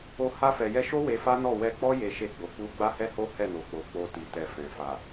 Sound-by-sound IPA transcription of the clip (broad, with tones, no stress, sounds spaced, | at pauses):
o˧ h a˧ f ɛ˨ j ɛ˧ ʃ o˦ w e˧ f a˦ n ɔ˦˨ w ɛ˧ k͡p ɔ˦ j e˧ ʃ e˧ ɡ͡b o˨ k͡p u˧ ɡ͡b a˦ h ɛ˦ h o˦ h ɛ˦˨ n o˨ k͡p o˨ k͡p o˧ t i˨ t ɛ˨ f ɛ̃˨ f a˨